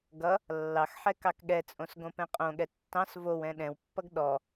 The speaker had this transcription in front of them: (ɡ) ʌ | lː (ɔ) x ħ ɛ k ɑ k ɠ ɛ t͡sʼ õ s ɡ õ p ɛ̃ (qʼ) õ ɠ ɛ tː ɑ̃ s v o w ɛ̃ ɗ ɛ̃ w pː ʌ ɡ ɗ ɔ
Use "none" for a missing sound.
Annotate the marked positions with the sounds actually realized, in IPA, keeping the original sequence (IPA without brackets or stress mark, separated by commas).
ɡ, ɑ, qʼ